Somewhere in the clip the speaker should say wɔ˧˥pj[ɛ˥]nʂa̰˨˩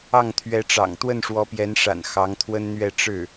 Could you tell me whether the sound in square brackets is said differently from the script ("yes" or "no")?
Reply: yes